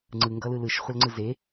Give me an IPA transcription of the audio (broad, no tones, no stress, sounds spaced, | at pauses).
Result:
ŋ͡ǀ ɯ ŋ ɡ ʌ l ɯ l ɯ ʃ χʷ ʌ l ŋ͡ǀ ɯ z e